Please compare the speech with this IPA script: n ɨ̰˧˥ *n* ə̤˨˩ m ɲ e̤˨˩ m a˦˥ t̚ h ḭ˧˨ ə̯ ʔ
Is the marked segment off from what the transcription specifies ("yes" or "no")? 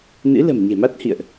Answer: yes